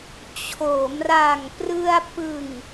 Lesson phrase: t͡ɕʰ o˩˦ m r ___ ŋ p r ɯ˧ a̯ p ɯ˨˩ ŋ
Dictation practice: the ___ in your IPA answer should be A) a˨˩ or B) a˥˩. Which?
A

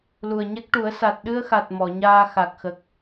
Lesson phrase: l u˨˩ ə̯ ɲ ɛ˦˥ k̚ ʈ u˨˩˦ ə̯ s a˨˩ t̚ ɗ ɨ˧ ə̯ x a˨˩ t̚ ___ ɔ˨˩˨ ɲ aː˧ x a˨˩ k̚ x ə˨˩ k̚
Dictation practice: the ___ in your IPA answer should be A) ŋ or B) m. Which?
B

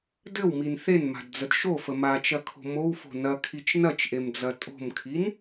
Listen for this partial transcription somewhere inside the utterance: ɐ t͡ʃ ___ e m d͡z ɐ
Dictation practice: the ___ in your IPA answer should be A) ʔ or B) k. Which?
A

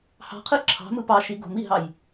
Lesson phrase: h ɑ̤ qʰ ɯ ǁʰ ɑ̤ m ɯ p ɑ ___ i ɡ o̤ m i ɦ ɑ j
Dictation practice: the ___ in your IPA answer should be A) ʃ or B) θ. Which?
A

